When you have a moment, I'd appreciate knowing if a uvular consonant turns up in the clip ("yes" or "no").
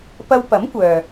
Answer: no